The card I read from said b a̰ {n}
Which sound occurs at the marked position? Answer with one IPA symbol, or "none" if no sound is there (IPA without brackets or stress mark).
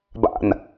n